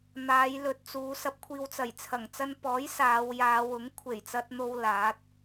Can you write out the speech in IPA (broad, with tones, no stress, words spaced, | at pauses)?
n̪aː˨˧jlɵ˨t̚t͡suː˨˧ sɐ˧p̚kʷʰiː˨w t͡sɐ˨˩jt͡sʰɐ˨˩ŋt͡sɐ˧n pɔː˨˥j saː˨˧wjaː˨˧ wʊ˨˥ŋkʷʰe˨˩jt͡sɐ˧t̚n̪o˧w laː˨˥t̚